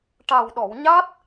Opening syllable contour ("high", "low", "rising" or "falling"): low